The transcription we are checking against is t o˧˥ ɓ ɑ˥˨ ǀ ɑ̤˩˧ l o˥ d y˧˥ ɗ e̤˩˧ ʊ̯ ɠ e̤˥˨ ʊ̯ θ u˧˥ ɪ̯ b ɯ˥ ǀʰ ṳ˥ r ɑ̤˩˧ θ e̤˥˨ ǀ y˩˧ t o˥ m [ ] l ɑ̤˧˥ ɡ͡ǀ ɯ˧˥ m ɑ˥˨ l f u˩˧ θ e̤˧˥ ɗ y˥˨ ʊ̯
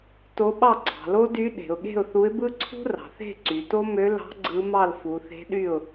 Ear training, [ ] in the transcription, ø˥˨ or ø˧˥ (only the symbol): ø˧˥